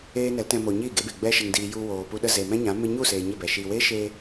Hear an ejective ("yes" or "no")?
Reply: no